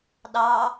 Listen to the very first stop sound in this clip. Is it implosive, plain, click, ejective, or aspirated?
implosive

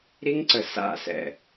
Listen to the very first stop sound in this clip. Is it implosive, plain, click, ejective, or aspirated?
click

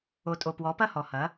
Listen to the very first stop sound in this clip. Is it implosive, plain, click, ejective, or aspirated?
ejective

